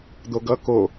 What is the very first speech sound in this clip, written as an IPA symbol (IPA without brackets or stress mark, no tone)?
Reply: d̪